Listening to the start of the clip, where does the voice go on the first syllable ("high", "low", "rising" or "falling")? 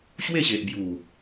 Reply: falling